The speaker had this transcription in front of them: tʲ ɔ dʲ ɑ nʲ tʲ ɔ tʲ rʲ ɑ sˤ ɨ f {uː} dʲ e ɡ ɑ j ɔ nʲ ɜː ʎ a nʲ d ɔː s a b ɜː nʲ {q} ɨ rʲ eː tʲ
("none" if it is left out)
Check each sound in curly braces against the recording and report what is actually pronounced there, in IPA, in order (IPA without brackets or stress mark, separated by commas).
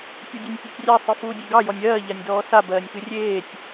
uː, k